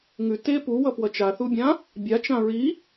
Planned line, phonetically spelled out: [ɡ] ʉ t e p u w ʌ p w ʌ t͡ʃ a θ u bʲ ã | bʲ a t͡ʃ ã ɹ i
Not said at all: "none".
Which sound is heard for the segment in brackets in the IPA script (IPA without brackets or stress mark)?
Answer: ŋ